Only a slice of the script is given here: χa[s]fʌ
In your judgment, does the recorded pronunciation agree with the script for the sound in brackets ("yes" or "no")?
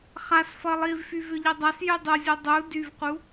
yes